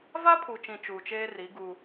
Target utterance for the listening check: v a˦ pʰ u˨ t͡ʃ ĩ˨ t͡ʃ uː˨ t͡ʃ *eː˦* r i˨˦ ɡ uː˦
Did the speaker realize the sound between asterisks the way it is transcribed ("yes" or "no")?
yes